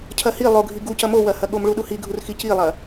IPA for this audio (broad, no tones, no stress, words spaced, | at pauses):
cʰɐhi lˠoɡʱi ɡucɐ mowɐhɐɠom ɭuɗuhiɡʱur xicilˠɐ